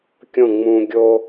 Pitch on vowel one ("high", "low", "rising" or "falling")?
falling